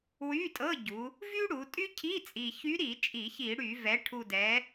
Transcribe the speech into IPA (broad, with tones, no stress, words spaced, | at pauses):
wy˧˥˧tʼɤ˧˥˧ɟu˩˧ | vy˥ɽu˩˧tʼy˥ cʰi˧˥˧t͡sʼi˨˩çy˧˥ɾi˧˩˧ t͡ʃʼi˧˩˧çi˧˩˧ɽy˧˩˧ vɛ˩˧ʈʰu˨˩ dɛ˩˧